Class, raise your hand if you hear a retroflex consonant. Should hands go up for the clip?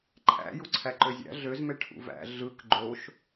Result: yes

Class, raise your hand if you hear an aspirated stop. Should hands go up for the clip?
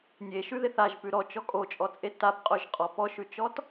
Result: no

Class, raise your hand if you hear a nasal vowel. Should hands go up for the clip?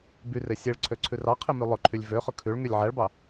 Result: no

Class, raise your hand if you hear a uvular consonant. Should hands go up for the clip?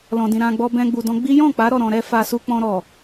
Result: no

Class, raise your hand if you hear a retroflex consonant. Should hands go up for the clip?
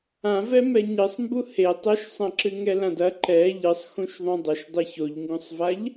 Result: no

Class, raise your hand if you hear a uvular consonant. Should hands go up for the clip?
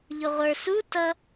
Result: yes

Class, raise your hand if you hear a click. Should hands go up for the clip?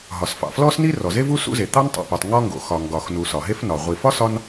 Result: no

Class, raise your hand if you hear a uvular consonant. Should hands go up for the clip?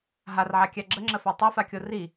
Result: no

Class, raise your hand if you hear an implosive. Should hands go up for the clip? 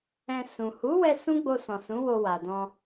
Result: no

